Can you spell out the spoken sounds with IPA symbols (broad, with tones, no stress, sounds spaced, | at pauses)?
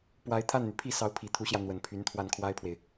p w a˧˥ ɪ̯ t̪ʰ a˥˩ n n̪ y˩ pʰ i˥˩ s ɑ˧˥ ʊ̯ pʰ i˨˩ t̪ʰ u˧˥ ɕ j ä˧ n̪ w ə˨˩ n pʰ y˧˥ n t̪ʰ w a˥˩ n kʰ w a˥ ɪ̯ pʰ w e˨ ɪ̯